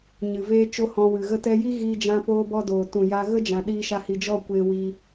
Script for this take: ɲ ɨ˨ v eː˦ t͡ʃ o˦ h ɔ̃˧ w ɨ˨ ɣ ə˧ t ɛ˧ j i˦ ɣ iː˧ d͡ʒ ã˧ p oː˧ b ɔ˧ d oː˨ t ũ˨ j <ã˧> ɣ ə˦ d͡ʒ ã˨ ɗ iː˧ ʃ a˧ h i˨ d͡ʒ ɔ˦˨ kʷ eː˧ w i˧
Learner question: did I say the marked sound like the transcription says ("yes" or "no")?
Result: no